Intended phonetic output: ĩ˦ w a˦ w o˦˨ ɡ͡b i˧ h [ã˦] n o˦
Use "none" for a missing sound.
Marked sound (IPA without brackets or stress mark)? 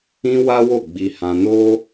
ã˧